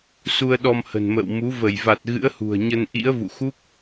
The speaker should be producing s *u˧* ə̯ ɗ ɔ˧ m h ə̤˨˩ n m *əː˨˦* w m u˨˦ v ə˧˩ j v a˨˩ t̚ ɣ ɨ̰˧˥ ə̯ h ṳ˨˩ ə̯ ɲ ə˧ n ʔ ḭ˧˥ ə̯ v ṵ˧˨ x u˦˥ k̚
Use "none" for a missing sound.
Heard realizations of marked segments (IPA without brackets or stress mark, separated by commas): u˧, ə̰ː˧˨